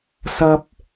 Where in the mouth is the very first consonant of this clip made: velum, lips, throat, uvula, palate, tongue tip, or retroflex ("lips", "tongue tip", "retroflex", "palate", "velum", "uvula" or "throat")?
tongue tip